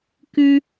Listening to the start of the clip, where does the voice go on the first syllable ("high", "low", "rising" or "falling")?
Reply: high